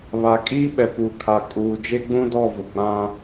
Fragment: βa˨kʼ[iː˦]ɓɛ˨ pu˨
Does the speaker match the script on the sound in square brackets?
yes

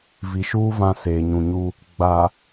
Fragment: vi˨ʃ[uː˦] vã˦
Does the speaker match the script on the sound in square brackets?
yes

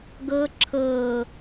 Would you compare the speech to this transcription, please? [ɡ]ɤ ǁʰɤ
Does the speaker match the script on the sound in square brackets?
yes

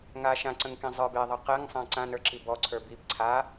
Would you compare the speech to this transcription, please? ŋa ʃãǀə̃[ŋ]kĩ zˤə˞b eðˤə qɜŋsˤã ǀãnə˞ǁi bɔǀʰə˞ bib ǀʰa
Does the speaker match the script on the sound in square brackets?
yes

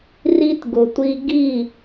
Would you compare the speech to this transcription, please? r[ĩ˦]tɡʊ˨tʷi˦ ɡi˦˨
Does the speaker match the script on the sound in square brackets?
no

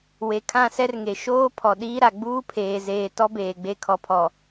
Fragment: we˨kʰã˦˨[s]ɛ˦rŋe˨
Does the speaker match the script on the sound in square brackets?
yes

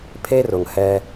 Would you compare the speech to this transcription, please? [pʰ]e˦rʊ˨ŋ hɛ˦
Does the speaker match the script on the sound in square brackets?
yes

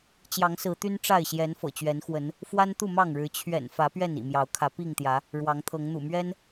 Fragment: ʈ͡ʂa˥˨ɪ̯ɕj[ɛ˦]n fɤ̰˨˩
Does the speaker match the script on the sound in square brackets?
no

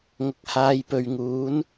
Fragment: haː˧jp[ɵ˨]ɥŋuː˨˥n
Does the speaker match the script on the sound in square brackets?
yes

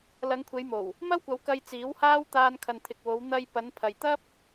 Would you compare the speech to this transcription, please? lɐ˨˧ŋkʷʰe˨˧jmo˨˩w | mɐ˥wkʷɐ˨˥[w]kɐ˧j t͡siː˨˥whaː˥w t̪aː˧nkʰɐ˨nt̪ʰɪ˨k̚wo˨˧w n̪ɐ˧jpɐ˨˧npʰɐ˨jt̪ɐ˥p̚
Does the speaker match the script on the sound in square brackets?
yes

